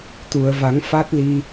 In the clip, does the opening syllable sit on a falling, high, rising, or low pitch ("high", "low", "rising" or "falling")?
low